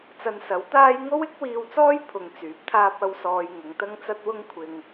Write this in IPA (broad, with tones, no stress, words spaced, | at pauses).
t͡sɐ˧nsɐ˨˥wt̪aː˥j ŋo˥wɪ˥k̚wiː˧wt͡sɔː˥j pʰʊ˧ŋt͡syː˨˥p̚t̪ʰaː˥p̚ɐ˥w sɔː˧jŋʊ˨˧ŋt̪ɐ˥ŋt͡sɐ˥t̚ wʊ˥ŋkʷʰɪ˧ŋ